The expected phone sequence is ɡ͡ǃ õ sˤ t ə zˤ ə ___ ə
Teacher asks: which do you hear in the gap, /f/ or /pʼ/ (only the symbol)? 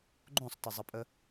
pʼ